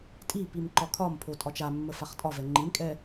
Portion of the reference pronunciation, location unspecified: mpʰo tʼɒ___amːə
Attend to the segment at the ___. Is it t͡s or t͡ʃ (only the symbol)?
t͡ʃ